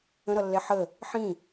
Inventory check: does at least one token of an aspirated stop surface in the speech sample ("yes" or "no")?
no